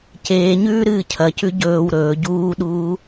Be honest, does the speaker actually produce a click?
no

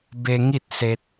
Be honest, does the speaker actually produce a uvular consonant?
no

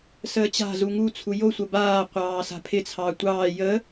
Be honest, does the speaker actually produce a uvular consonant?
yes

